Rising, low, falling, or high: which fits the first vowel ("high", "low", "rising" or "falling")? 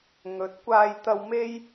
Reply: rising